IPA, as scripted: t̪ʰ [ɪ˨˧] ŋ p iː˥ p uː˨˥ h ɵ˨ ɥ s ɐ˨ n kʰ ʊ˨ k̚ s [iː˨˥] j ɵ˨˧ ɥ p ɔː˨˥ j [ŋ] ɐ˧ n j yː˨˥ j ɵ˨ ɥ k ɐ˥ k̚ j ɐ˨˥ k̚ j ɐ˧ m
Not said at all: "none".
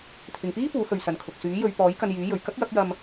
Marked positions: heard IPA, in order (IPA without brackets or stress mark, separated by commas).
ɪ˨, yː˨˥, k